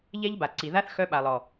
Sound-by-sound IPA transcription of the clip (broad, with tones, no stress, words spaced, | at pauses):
ʎɛ˦ʎba˨ǀi˨ ða˦θxœ˧ɓa˨lˠ ɔ˨